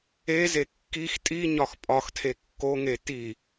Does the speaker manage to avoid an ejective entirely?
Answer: no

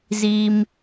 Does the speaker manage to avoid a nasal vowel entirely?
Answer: yes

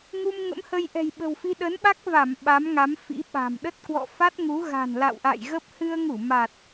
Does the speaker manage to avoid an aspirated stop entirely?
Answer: yes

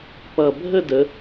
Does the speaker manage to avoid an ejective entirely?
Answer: yes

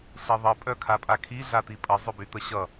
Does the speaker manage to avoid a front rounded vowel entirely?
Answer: no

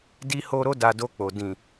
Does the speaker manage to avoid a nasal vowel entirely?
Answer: no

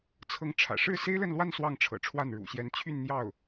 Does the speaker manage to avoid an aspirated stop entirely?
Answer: no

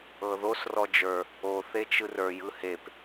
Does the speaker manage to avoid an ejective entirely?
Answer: yes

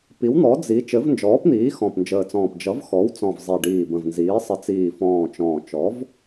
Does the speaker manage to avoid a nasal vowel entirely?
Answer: no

